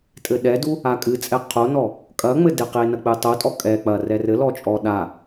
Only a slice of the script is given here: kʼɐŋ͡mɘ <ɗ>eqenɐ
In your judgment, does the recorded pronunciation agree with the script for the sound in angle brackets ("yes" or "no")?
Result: no